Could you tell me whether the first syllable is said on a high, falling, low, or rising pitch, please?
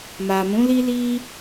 low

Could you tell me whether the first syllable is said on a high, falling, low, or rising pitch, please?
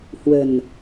low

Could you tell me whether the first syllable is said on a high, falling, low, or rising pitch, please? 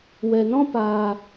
low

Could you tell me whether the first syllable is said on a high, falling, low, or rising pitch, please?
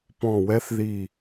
falling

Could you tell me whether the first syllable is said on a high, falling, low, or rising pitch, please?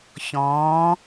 rising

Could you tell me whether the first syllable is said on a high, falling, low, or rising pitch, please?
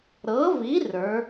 rising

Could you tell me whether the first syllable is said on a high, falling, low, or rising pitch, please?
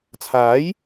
rising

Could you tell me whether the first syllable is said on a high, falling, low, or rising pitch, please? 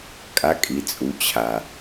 rising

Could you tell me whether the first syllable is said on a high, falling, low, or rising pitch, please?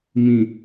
low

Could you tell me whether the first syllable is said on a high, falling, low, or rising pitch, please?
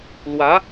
rising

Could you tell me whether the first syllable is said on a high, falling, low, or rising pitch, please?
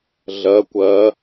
rising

